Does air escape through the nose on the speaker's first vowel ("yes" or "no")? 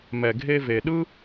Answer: no